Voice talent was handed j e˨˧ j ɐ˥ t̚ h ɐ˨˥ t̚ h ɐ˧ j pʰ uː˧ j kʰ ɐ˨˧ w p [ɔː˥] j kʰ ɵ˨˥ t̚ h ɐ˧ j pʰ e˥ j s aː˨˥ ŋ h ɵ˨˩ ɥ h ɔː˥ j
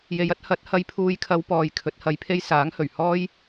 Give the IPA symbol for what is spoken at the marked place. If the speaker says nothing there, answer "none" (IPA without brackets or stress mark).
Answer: ɔː˨